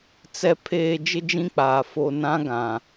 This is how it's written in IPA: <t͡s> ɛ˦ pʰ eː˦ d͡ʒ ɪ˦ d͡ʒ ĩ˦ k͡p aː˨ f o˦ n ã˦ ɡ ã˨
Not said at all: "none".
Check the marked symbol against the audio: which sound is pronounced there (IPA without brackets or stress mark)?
t͡s